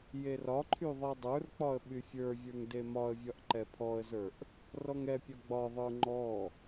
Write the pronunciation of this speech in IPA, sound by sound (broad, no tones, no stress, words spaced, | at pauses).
jerɒǃʰy ðˤɛdˤə˞rk͡pɒə̯ ɓyfʲə˞vʲə˞ŋ demɒə̯vʲɒʔ ǃɛpʰɔə̯zə˞ʔ | rɔŋɛpʲɒ ɡ͡bɒðˤə˞ ŋ͡ǃɔ